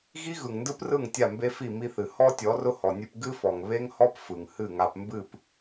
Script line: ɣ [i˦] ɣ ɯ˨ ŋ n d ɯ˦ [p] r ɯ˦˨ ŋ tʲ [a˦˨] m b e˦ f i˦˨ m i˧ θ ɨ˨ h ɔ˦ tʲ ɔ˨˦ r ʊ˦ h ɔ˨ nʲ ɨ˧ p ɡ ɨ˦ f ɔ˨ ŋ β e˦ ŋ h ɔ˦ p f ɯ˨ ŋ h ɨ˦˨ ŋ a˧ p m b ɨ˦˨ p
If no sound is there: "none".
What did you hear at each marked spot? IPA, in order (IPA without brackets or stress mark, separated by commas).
i˦, p, a˦˨